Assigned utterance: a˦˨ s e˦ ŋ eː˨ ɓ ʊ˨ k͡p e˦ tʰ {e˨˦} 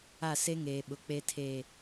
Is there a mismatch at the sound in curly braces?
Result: yes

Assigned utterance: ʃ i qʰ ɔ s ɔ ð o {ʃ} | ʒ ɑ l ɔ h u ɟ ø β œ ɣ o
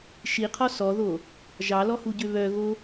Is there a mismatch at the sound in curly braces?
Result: yes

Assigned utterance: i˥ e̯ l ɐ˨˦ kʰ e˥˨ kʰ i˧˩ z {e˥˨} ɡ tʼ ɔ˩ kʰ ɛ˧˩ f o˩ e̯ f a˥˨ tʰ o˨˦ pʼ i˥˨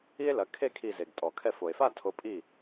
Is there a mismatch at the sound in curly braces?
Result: yes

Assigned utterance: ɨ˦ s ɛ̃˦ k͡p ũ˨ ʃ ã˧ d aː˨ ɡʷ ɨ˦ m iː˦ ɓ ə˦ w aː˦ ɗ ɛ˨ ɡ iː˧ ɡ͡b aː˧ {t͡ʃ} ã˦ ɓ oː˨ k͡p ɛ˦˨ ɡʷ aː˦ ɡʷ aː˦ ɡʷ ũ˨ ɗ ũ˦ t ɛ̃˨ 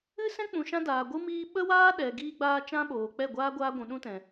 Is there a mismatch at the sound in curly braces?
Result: no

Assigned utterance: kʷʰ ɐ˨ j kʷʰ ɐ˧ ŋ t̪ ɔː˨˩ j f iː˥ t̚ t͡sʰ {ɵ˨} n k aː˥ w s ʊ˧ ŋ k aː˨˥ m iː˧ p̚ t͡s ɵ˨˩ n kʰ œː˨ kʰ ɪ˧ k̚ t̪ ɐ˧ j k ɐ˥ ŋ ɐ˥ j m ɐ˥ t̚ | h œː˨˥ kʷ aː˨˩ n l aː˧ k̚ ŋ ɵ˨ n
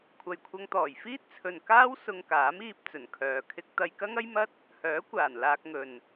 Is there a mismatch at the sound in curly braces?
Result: no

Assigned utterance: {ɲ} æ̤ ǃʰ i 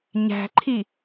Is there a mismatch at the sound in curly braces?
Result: no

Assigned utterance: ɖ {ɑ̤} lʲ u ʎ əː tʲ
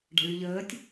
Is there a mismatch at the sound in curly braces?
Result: no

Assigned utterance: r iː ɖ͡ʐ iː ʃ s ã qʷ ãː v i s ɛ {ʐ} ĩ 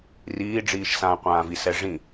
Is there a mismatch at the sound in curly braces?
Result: no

